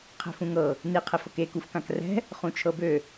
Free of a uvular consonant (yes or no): no